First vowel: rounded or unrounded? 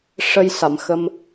unrounded